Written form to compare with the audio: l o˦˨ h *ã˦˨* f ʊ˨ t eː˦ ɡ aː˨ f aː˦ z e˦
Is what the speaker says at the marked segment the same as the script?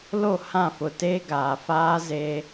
yes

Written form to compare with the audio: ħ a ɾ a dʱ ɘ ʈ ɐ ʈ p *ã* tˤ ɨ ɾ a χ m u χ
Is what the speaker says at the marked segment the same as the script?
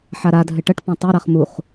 yes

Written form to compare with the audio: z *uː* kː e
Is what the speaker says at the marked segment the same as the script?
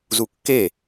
no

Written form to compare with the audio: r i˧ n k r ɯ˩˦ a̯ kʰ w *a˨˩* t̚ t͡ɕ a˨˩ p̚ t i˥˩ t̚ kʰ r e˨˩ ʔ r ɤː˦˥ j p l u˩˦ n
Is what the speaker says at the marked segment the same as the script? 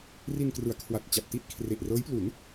yes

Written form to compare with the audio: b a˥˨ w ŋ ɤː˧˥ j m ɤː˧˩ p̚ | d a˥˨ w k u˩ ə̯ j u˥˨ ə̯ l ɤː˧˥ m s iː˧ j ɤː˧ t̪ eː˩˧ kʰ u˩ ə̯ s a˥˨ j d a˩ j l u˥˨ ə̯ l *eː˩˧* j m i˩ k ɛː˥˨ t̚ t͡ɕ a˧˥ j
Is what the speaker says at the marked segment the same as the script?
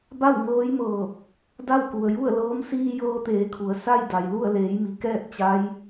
yes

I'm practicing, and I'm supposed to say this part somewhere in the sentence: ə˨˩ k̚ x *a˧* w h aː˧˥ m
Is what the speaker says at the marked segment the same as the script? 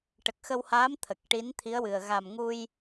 no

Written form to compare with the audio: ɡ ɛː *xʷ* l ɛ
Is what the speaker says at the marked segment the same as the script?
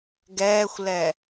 yes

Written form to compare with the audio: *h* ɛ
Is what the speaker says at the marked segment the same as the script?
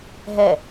no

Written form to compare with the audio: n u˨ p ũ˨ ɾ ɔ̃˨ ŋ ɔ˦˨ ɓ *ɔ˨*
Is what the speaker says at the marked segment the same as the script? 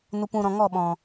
no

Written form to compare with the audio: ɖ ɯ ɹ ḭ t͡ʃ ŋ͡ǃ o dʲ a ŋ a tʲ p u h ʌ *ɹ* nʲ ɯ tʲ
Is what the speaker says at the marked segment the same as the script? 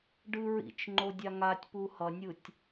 no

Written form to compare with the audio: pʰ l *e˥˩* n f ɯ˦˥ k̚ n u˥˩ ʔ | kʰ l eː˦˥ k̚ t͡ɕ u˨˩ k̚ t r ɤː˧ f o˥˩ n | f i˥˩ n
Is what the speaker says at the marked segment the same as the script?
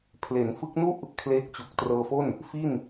no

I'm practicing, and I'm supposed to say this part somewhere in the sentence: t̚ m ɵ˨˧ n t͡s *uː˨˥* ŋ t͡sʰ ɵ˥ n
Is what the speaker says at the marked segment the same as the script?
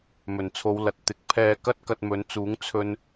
yes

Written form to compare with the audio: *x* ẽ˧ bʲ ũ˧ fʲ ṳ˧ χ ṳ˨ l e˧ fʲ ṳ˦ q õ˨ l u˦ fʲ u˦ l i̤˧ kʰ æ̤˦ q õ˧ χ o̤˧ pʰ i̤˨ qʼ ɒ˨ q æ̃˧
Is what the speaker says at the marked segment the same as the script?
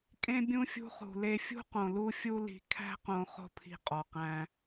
no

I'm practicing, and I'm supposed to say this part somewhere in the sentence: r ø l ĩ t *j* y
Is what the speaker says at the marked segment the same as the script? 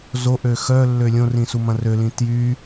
yes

